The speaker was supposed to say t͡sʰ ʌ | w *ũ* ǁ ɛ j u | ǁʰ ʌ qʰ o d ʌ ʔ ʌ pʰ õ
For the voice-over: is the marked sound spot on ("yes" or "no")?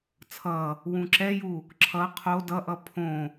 yes